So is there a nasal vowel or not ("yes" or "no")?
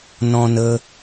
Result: yes